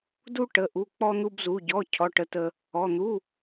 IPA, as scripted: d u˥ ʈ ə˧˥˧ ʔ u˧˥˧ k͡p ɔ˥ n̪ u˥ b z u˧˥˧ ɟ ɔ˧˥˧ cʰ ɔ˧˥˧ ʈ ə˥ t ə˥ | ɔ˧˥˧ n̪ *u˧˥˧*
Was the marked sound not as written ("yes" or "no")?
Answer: no